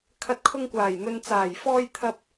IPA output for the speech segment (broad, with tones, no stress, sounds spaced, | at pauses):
kʰ ɐ˨˥ t̚ kʰ ʊ˧ ŋ kʷ aː˨˩ j n̪ ɵ˨ n t͡s aː˨˩ j f ɔː˧ j t̪ʰ ɐ˧ p̚